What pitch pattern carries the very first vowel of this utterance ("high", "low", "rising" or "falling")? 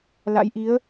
rising